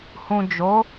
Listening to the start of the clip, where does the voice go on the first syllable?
low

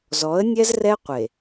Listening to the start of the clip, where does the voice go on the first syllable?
rising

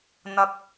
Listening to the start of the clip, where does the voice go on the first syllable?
low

